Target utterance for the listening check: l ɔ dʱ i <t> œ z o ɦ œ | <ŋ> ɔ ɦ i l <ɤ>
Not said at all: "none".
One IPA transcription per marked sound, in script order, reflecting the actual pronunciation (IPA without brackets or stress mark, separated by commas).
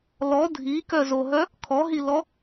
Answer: k, kʰ, ɔ